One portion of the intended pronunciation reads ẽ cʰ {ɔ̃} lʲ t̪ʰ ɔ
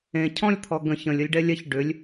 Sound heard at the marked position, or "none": ɔ̃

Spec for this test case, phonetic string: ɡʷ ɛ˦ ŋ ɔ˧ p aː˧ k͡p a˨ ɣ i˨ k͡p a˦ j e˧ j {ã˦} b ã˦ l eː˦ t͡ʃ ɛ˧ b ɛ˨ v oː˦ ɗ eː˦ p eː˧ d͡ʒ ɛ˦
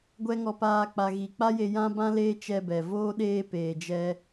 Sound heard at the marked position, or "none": ã˦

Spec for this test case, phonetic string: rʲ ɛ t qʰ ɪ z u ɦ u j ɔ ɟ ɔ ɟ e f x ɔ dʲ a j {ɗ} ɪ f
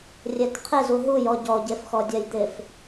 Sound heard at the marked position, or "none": d̪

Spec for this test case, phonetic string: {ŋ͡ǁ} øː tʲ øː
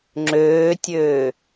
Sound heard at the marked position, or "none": ŋ͡ǁ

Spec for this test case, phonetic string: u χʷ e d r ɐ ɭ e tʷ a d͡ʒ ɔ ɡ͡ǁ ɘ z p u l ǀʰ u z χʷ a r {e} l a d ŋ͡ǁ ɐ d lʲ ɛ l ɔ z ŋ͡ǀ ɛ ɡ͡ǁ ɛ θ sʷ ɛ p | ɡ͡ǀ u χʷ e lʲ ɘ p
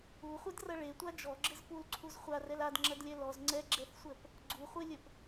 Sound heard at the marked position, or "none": ɛ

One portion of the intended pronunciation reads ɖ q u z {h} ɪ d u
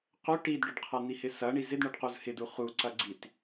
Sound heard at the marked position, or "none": h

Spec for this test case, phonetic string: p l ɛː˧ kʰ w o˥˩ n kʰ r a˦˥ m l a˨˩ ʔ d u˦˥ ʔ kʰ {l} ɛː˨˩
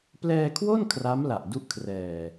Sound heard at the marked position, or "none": r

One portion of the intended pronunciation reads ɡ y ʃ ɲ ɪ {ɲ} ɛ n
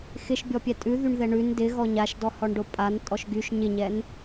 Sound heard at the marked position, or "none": ɲ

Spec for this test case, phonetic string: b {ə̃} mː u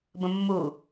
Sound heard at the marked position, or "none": ə̃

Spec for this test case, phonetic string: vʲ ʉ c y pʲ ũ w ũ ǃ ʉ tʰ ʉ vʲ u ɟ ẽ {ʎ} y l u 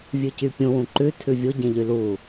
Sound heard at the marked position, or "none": ʎ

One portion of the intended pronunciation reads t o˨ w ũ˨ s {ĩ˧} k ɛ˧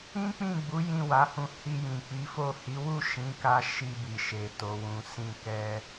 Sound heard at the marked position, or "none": ĩ˧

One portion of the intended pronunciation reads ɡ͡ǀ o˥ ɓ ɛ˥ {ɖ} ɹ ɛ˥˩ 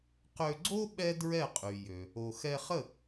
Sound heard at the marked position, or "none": d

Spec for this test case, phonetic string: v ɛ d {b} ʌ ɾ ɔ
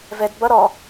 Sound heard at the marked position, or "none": b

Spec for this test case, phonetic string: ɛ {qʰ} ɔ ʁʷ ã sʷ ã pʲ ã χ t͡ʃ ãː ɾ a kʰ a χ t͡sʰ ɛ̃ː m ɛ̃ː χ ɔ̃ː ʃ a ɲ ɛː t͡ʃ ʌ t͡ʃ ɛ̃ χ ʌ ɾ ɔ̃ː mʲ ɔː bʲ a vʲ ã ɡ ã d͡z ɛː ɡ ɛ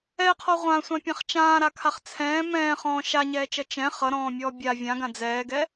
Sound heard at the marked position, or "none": qʰ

